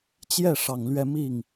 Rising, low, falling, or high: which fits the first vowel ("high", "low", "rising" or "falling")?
falling